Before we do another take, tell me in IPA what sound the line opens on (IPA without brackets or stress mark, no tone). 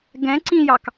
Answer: ɡ